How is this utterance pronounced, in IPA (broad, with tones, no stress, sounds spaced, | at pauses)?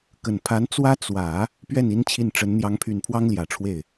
k ə˨˩ n pʰ a˧˥ n t͡s w ä˥ t͡s w ä˨˩˦ | p ɥ ɛ˥˩ n i˥ n t͡ɕʰ i˥˩ n ʈ͡ʂ ə˧˥ n n̪ j ɑ˧˥ ŋ pʰ y˨˩ n pʰ w ɑ˥ ŋ l j ä˨˩ ʈ͡ʂʰ w e˥˩ ɪ̯